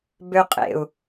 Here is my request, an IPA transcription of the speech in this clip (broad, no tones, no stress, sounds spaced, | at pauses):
b ø qʼ ḛ u̯